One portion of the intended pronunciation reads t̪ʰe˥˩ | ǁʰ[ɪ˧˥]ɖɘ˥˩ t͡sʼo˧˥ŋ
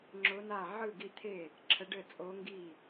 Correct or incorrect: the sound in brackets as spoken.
incorrect: ə˧˥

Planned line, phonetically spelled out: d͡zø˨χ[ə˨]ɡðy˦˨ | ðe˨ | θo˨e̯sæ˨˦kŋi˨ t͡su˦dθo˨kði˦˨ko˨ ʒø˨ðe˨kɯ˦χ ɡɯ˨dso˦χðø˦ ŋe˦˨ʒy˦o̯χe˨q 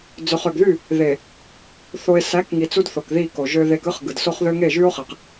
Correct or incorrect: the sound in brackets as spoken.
incorrect: ø˨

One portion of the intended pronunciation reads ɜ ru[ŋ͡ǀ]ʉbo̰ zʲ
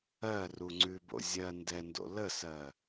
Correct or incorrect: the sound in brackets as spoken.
correct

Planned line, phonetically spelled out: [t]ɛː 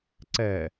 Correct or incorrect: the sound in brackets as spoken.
incorrect: ǀ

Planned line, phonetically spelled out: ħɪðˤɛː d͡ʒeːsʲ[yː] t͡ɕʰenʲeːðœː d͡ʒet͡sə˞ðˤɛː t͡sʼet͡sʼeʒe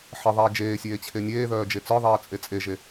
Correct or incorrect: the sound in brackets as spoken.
incorrect: eː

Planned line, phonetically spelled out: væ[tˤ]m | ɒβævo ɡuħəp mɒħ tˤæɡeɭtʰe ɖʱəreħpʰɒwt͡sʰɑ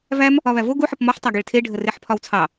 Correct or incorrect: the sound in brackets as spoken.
incorrect: none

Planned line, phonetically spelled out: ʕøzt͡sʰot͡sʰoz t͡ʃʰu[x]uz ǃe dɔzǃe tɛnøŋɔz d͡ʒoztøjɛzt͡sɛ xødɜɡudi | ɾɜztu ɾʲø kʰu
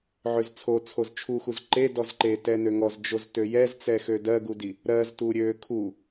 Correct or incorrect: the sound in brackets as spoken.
correct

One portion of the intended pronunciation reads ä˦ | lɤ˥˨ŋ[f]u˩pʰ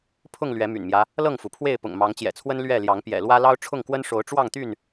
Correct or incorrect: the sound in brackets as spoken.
correct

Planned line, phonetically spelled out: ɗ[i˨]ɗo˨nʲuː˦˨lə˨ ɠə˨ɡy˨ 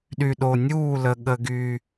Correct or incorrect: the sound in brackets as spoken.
incorrect: y˨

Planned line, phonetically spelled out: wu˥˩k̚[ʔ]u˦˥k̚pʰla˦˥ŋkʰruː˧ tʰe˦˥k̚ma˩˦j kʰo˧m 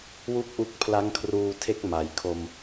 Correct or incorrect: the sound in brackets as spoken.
correct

